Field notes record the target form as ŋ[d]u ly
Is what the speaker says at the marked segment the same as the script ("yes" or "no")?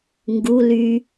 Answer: no